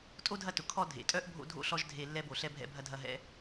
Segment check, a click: absent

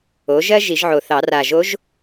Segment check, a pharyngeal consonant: present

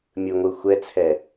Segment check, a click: absent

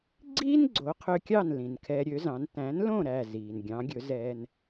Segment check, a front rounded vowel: present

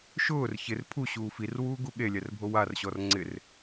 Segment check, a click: present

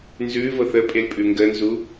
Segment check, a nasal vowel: absent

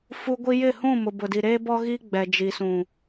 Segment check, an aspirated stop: absent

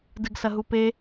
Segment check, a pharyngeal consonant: absent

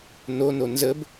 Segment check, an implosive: absent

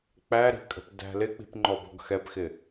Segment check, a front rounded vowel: absent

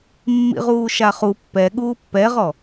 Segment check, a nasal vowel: absent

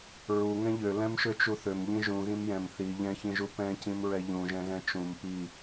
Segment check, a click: absent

